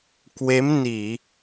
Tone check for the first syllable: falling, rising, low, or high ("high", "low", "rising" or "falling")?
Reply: rising